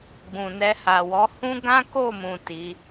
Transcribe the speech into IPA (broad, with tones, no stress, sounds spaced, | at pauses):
ɡ͡b ũ˨ n ɛ˧ h a˨ w ɔ˨˦ h ũ˦ ɡ ã˦ k o˦˨ m ũ˨ t i˨˦